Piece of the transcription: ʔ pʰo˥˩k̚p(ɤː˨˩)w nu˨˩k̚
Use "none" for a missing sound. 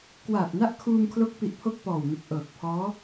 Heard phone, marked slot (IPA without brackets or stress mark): ɔː˨˩